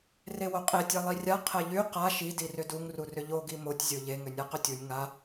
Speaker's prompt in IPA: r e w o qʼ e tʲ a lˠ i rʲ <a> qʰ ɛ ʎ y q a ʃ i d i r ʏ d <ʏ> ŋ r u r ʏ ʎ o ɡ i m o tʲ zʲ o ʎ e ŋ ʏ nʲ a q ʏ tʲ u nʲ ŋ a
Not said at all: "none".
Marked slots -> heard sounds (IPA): a, u

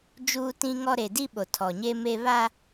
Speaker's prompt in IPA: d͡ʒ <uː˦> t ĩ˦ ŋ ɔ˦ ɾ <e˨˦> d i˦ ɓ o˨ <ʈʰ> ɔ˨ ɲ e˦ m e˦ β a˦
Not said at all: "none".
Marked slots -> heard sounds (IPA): uː˦, e˨, tʰ

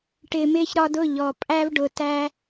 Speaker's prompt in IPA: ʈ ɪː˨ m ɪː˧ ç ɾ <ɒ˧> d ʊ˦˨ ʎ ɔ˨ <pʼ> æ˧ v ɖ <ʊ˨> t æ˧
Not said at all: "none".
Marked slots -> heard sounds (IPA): ɒ˧, pʼ, ʊ˨

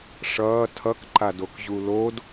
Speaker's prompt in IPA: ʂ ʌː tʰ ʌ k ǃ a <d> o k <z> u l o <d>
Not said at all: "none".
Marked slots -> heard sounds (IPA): d, ʑ, d

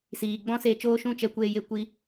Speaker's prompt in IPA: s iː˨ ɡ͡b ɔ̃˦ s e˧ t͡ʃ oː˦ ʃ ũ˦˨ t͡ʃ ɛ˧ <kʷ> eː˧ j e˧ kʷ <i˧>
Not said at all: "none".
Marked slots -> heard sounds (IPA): kʷ, i˧

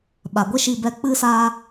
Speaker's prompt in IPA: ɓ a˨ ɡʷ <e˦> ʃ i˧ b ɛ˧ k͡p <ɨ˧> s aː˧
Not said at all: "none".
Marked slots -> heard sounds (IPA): e˦, ɨ˧

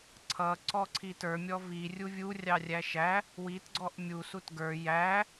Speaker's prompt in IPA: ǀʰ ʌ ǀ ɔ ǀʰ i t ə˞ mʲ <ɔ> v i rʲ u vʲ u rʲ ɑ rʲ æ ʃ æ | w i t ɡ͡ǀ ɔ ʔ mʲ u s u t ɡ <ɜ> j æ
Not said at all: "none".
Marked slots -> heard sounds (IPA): ɔ, ə˞

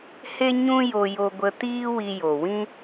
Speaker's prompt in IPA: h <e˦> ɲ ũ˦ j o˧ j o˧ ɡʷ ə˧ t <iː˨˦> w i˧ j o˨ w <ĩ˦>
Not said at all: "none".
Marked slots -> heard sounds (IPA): e˦, iː˦, ĩ˦

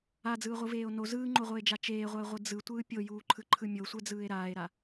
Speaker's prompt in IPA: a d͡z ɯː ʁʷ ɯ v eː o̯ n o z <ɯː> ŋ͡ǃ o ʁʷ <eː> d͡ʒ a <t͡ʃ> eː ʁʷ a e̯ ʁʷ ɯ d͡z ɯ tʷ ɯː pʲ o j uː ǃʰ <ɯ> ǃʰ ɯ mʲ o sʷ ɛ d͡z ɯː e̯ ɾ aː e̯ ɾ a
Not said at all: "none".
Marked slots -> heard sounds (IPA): ɯː, eː, t͡ʃ, ɯ

